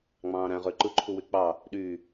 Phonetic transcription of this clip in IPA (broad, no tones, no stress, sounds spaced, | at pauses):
ŋ͡m ɑ̃ː ɾ æ̃ ʁ ø ǃ ɯ ǃʰ u w y k͡p ɑ | ɗ y